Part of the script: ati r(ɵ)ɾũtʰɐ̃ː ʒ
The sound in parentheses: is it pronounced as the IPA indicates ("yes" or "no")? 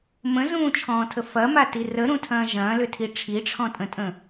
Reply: no